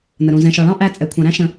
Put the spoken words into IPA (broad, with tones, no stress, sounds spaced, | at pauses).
n ə˨ ɾ ũ˨ z ɛ̃˨ ʃ ɒ˨ ɭ ɑ̃˦ ʔ æ˧ t͡sʼ ɛ˨ kʷʰ ɑ̃˨ ɾ æ̃˦ ʃ ə̃˨